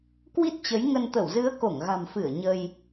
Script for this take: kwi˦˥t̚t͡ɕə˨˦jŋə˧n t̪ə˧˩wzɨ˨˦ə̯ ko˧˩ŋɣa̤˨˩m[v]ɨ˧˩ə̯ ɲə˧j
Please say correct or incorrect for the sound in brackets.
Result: incorrect